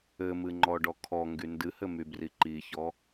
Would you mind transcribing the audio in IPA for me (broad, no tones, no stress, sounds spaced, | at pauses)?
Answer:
ɘ m ɨ ŋ͡ǃ ɔ ɖ ɔ kʰ ɔ ŋ ɡ y n d ɨ h ɘ m y b r i ǃ i ç ɔ